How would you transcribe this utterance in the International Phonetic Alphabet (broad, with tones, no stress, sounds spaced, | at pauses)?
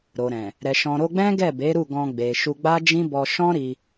ɾ o˨ ɾ ɛ̃˨ | ɾ ɛ˨ ʃ ɔ̃˨ ɾ o˧ ɡ͡b ɛ̃˦ ɡ ɛ˦˨ b e˨˦ ɾ u˦˨ ɡ ɔ̃˧ ɡ͡b e˨ ʃ u˧ ɡ͡b a˦ d͡ʒ ĩ˦ b ɔ˧ ʃ ɔ̃˦ ɾ i˧